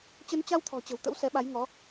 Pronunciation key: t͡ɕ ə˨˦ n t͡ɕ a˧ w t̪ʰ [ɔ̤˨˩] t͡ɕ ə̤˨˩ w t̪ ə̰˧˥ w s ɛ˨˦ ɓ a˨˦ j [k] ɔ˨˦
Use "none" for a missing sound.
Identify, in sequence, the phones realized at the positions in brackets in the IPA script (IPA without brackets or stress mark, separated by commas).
ɔ̤˨˩, ŋ